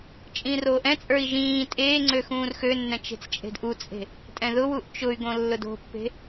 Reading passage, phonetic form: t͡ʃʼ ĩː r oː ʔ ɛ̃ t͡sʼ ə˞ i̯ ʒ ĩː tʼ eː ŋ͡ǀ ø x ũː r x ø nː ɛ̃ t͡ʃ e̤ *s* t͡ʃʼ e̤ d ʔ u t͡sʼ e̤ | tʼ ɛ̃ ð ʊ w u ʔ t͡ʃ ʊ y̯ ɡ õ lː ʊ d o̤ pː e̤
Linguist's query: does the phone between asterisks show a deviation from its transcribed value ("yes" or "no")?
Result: yes